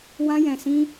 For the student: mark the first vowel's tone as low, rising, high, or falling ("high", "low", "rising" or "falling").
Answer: high